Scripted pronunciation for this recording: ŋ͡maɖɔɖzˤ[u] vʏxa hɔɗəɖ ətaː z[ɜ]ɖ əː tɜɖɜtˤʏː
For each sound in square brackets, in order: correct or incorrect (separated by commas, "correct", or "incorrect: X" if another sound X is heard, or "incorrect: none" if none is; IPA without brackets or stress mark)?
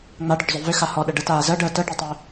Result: incorrect: ʏ, correct